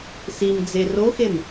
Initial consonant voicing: voiceless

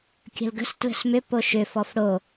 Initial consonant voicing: voiceless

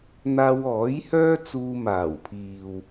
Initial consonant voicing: voiced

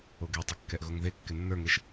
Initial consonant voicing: voiced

